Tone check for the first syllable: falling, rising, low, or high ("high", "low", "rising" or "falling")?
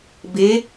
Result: rising